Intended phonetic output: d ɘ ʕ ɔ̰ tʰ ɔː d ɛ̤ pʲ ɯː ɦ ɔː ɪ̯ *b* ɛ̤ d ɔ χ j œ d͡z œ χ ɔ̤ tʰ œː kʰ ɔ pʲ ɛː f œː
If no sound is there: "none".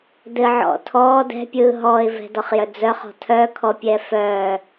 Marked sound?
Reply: v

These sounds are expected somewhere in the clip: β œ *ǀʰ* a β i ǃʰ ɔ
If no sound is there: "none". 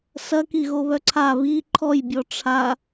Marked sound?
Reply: ǀʰ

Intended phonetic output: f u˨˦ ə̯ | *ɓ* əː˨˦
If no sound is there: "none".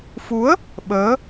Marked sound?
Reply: ɓ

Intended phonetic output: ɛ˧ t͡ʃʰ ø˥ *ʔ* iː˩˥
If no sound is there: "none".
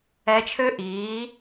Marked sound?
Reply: ʔ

